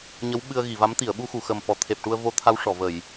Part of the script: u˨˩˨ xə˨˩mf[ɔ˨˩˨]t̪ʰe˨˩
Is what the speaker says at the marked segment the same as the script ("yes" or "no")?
yes